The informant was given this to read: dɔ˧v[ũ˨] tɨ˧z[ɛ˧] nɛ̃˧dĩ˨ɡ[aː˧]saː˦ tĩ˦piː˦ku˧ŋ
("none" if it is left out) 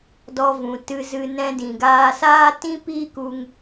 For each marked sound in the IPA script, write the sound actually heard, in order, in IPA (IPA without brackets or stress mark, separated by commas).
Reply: ũ˨, ɨ˧, aː˧